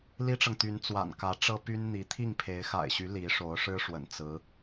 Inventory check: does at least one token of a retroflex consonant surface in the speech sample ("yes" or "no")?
yes